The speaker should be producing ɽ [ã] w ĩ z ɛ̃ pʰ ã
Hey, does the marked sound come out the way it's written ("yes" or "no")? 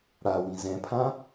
no